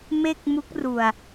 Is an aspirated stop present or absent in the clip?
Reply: absent